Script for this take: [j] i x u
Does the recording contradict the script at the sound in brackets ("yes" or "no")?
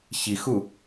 yes